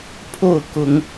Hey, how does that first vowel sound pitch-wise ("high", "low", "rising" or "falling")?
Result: falling